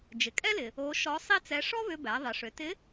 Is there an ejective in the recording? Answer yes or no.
yes